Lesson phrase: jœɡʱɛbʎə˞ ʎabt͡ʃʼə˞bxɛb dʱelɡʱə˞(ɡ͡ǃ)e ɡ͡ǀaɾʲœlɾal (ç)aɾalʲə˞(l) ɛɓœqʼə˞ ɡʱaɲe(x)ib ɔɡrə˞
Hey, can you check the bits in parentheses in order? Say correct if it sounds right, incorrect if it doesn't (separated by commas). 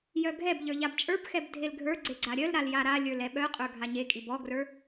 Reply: incorrect, incorrect, correct, incorrect